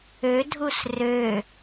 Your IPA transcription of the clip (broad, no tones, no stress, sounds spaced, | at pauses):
ø dʱ u s r ø